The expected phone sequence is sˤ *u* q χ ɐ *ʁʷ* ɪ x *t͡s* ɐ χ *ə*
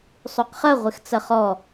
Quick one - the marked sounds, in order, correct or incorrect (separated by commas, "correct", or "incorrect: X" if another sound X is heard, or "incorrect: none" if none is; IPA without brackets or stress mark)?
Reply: correct, correct, correct, incorrect: ɔ